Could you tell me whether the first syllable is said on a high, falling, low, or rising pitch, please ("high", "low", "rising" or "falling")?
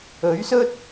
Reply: rising